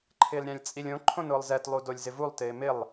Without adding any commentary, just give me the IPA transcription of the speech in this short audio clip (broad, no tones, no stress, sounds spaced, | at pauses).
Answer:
ǃʰ ɪː l ɾʲ ã lʲ t͡sʼ i lʲ õ ǃʰ õ n ʊː lˠ z ɛ t lˠ u d o lʲ z ɪ v u lˠ t ɪː m ɪ lˠ